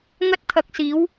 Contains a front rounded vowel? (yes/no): no